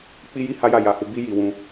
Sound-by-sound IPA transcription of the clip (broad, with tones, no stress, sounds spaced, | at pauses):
k͡p i˦ j i˦ h a˦ j a˦˨ j a˧ h u˧ b i˦ j i˧ w ũ˧